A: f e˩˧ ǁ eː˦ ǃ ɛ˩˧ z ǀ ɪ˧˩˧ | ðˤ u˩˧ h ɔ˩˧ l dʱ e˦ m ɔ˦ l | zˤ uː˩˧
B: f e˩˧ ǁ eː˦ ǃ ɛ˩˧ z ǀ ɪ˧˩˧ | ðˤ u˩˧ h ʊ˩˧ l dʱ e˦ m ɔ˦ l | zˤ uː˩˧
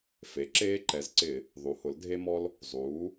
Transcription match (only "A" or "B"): B